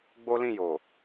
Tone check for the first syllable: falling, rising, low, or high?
high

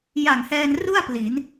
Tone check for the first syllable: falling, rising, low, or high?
low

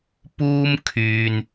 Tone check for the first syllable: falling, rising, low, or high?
high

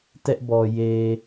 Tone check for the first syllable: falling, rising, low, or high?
high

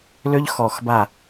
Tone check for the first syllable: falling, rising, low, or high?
high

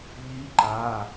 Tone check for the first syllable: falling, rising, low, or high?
rising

